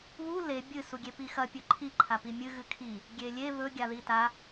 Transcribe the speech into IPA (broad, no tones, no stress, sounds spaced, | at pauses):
β u l e bʲ ɨ s u ɡʲ e p i x ɐ pʲ ɵ ǃʰ i ǃʰ a p i mʲ ɨ ɣ ɨ kʰ i | ɡʲ e lʲ e β ɵ ɡʲ a ð i t a